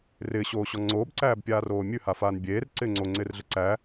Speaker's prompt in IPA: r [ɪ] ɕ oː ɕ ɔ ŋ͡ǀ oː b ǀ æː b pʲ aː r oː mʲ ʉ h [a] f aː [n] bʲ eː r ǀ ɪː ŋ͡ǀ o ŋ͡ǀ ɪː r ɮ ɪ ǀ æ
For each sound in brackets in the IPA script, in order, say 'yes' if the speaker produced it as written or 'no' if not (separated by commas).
no, yes, yes